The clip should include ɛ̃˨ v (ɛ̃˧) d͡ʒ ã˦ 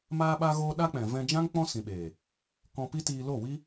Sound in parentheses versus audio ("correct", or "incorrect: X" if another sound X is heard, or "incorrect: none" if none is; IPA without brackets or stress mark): correct